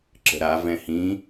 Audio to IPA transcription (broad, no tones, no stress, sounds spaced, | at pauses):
ǁ ə̤ ɾ a v ɛ̃ h ĩ